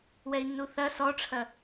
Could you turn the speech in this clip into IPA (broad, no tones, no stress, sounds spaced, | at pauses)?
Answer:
w ɛ i̯ nː u θ ɐ s ɔ ʈ͡ʂʰ ɐ